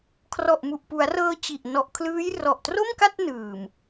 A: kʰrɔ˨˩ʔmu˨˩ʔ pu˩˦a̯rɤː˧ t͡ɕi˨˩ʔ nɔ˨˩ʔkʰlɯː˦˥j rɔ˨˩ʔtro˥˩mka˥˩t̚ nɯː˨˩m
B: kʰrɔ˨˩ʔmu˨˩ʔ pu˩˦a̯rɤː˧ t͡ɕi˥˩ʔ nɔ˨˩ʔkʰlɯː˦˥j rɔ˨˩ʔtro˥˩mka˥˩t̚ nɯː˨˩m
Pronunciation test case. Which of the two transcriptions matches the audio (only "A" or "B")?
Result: A